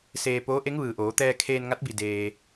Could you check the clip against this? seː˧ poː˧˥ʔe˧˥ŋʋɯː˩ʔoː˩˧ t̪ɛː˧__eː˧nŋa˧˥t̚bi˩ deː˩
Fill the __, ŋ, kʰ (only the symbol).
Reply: kʰ